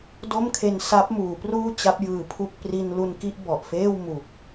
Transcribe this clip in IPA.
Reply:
d o˥˩ m kʰ e˧ n s a˦˥ p̚ m uː˩˦ p r uː˥˩ t͡ɕ a˦˥ p̚ j ɯː˨˩ pʰ u˥˩ k̚ p r i˧ n l u˧ n k i˥˩ ʔ b ɔ˨˩ ʔ f eː˥˩ w m u˨˩ k̚

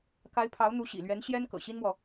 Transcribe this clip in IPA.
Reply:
k a˧˥ ɪ̯ pʰ ɑ˧˥ ʊ̯ n̪ u˧˥ ɕ ḭ˨˩ l ɥ ɛ˧˥ n ɕ j ɛ˥ n k ɤ̰˨˩ ɕ i˥ n m w ɔ˨

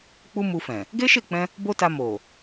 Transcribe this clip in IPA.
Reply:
k͡p u˦ m u˧ f ɛ̃˨ | ɡ e˦ ʃ e˦˨ k͡p ɛ̃˧ | b o˦ t a˧ m o˨

